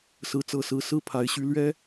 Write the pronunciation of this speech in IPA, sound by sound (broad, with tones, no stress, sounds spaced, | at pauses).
s ɹ̩˧˥ t͡s ɤ˨˩ s ɹ̩˧˥ s ɹ̩˥˩ pʰ a˧˥ ɪ̯ ɕ y˥ l ɥ ɛ˥